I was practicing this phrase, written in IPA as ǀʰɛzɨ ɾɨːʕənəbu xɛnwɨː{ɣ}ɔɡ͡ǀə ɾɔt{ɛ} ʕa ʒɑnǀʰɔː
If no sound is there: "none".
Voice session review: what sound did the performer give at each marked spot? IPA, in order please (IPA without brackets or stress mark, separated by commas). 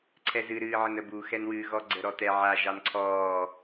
ɣ, ɛ